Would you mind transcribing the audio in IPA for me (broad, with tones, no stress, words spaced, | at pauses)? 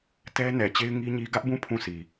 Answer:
tɛ˦ nɛ˨t͡ɕe˦ɪ̯ ŋi˦ɲi˦ ɡä˦ʔbũ˦˨ pʰũ˦˨si˨